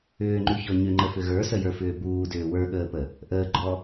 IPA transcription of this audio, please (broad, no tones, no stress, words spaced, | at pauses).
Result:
ʏːŋ͡ǃʉçɔ ɲʏŋ͡ǃəfʏ ɣə˞səjə˞fʏː buːdʏː wə˞ɠəːpə | ʔəːɡ͡ǃɔ